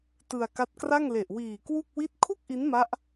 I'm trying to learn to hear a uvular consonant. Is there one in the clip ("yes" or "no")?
no